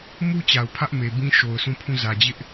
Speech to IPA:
mu˦t͡ɕa˨ʊ̯ pʰä˦ʔme˨bĩ˦ ʃo˨ʊ̯sʰũ˦˨pʰũ˦˨ zä˨d͡ʑɪ˦ʔ

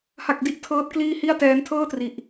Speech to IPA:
ha˥˩k̚ di˥˩ʔtʰɤː˦˥t̚ kliː˥˩hi˥˩a̯tɛː˦˥n tʰɤː˥˩tri˨˩ʔ

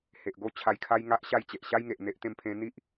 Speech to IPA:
he˨ʔɡo˥˧ t͡ɕʰa˧jkʰa˦j ŋa˦ʔɕa˥˧j t͡ɕe˨ʔɕa˦jŋe˨ʔ n̪e˦ʔt̪ẽ˥˧mpʰẽ˦ n̪i˦ʔ

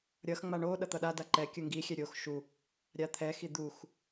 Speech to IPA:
ɾʲʌxŋ͡ma ɳo ɗʌt̪ʌɗada ǃɛ kʲɯŋɡixʲɛ ɾʲox ʃu | ɾʲat̪ʰɛxi d̪ux

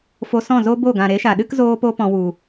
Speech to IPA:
fo˧sɔ̃˦˨zo˦ bo˦˨ɡã˨ ɾe˨˦ʃa˨ɗɨ˦k zoː˦po˦ pɔ̃˧wu˨

